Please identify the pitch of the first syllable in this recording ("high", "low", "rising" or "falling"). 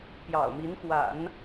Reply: low